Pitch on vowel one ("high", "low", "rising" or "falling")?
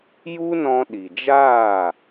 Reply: high